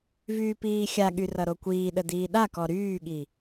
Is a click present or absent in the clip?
absent